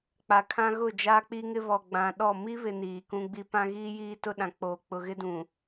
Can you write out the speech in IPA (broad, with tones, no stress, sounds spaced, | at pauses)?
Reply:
k͡p a˨ kʰ ã˦ ɣ ʊ˦˨ d͡ʒ aː˦ k͡p i˦ ŋ ɪ˦ β ɔ˨ ɡ͡b ã˨ ɗ ɔ˦˨ m i˦ β ɪ˨ n iː˨ k ũ˦ ɡ͡b i˦ p ã˦ ɣ iː˦ j iː˦ t ʊ˦ ɗ ã˨ k͡p oː˨ k͡p ʊ˨ ɣ ɪ˦ d ũ˨